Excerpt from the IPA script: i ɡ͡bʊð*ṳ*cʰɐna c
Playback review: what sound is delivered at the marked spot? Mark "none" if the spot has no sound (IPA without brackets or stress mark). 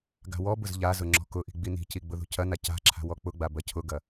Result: ṳ